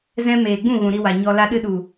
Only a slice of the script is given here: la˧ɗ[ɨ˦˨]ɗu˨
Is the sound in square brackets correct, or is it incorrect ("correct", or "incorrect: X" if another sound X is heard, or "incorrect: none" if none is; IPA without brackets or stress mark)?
incorrect: ɨ˧